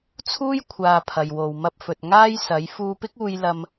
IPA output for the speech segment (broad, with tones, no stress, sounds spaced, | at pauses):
t͡sʰ uː˥ j kʷʰ aː˧ pʰ ɐ˨ j w o˨ w m ɐ˧ p̚ f ɵ˨ t̚ ŋ aː˥ j s ɐ˨˥ j f uː˧ p ɪ˥ k̚ uː˧ j l ɐ˧ m